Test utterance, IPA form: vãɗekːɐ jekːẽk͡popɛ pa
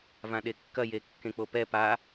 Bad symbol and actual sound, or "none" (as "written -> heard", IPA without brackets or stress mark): none